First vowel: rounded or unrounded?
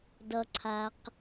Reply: unrounded